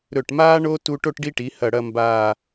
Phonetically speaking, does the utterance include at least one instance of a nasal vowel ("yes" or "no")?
no